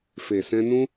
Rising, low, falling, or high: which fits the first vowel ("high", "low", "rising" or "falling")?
low